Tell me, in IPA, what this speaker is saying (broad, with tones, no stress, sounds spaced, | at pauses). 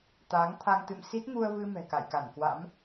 t̪ aː˨˦ ŋ t̪ʰ a˧ ŋ t̪ ɨ̰˧˨ m s i˦˥ t̚ ŋ u˧ ə̯ v ɨ˧ m ɛ̤˨˩ k a̰˧˨ j k a˧˩ n k w a̰˧˥ m